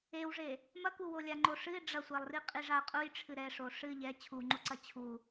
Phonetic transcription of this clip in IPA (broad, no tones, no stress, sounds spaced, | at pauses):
e w ʐ e | m ɐ k u w o lʲ a ŋ͡ǃ o ʂ ɨ ɪ̯ ɖ͡ʐ ɐ sʷ ɛ lˠ r i qʼ i ʐ a ə̯ qʼ u j ʈ͡ʂʰ ɨ ɾ ɛ ʂ o ʂ ɨ ʎ ɛ t͡ɕʰ u ŋ͡ǃ u ǀ ɐ t͡ɕʰ u